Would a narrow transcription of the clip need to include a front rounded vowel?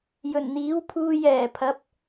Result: no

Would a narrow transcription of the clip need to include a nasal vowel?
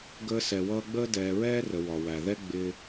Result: no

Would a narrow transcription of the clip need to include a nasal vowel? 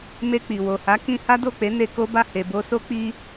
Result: yes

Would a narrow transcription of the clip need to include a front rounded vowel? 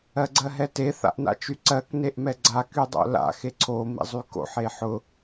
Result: yes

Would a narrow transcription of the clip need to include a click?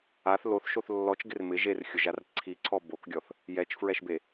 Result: yes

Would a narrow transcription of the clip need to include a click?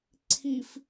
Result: yes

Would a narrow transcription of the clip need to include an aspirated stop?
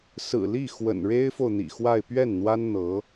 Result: no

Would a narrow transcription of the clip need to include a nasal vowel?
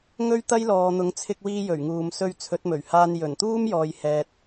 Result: no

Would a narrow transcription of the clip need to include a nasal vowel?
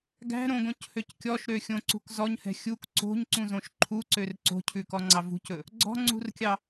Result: yes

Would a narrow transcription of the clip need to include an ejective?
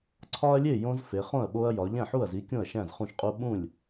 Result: yes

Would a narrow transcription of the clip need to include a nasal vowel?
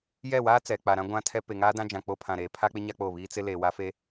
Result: yes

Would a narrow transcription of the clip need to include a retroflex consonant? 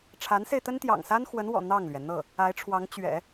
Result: yes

